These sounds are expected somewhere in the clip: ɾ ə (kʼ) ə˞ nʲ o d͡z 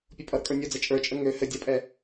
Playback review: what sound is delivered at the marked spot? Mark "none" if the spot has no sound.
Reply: kʼ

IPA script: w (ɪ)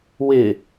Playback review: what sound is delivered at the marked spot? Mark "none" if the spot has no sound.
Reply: ɪ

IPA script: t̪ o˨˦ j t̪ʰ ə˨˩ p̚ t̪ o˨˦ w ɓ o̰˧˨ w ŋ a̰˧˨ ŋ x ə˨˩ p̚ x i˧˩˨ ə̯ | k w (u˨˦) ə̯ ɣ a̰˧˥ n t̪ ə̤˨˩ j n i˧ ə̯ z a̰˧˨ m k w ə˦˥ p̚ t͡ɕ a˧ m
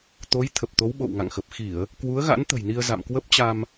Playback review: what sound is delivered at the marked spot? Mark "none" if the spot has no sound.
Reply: u˨˦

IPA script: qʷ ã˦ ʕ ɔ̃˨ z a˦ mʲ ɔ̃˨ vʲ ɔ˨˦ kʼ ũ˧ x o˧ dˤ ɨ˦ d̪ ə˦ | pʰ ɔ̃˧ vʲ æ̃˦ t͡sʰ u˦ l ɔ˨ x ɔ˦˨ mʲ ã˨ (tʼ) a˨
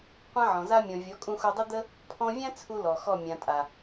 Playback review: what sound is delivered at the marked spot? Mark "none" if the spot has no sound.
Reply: tʼ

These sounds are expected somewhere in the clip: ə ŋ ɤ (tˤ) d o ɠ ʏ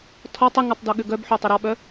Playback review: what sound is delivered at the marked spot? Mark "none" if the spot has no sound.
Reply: tˤ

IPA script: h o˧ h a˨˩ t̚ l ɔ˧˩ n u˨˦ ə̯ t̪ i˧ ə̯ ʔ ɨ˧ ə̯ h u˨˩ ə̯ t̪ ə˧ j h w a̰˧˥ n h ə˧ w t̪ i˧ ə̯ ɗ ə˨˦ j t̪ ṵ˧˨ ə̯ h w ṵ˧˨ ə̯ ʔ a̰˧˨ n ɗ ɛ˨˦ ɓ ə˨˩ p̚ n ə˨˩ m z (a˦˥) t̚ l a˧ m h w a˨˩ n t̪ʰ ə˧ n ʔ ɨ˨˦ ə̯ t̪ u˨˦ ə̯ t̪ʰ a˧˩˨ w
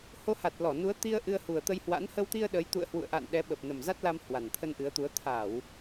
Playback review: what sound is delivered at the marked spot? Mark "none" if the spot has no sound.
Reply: a˦˥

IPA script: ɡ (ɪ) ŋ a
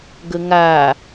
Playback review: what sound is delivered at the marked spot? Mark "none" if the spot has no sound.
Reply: ə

